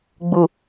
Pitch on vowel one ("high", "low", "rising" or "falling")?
low